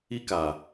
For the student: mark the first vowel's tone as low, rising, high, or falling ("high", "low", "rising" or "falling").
high